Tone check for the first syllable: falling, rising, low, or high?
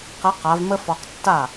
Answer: rising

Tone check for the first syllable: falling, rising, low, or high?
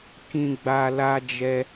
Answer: low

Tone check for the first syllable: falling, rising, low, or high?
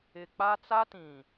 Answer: low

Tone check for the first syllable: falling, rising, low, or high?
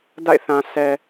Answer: falling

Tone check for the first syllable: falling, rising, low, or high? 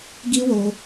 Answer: high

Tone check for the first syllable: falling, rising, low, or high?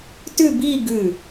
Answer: falling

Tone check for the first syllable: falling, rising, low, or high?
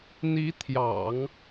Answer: rising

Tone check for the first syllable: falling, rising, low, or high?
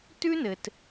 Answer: high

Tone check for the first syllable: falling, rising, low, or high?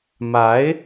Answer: rising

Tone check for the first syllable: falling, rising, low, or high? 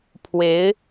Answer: rising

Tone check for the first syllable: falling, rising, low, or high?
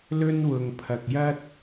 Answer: high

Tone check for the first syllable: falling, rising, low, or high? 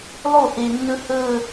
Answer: falling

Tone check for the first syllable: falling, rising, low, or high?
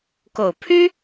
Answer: low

